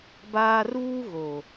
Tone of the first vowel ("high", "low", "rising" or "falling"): high